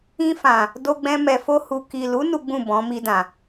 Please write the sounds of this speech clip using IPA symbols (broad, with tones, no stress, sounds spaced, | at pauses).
ĩ˧ f ã˨ | d o˧ ɡ͡b ɛ̃˧ m ɛ˨ f o˧ h u˨ k i˨ l u˨˦ n u˦ ɡ͡b ũ˦˨ b ɔ̃˨˦ m i˧ d ã˨